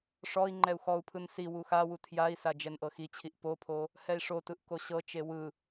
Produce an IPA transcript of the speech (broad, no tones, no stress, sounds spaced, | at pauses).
ʂ ɔ i̯ ŋ͡ǃ ɛ u̯ x ɔ u̯ pʰ ɯ n s i w u x a w u tʰ j a i̯ s a d͡ʒ ɛ n ʔ ɤ x i t͡ɕʰ i ʔ p o pʰ o | h ɛ i̯ ʂ o t ɯ ʔ k o ɕ ɤ t͡ʃ e w ɯ